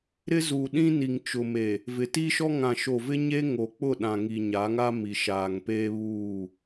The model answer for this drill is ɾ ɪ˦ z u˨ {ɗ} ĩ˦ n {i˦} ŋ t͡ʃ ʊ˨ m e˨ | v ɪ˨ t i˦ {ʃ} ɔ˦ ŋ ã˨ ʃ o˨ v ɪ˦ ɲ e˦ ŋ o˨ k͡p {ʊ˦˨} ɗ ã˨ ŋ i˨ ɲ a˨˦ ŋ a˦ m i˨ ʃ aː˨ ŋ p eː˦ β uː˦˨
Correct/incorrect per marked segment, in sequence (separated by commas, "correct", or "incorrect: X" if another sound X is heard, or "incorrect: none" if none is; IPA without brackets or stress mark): correct, incorrect: i˨, correct, correct